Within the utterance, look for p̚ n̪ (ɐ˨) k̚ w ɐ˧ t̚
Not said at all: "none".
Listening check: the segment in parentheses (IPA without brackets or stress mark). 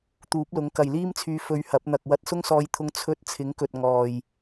ɐ˨